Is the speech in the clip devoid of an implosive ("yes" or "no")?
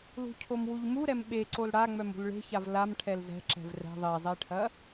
no